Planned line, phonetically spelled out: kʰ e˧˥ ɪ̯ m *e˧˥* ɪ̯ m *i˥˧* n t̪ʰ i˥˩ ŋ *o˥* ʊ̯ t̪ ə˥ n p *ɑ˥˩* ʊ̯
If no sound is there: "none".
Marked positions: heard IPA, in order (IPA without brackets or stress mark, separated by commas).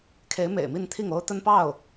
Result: ḛ˨˩, i˥˧, o˥, ɑ˥˩